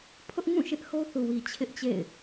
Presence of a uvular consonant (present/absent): absent